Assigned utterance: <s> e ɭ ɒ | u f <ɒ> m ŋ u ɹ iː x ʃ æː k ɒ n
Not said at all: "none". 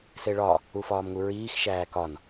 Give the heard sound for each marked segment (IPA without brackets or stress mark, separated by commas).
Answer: s, ɒː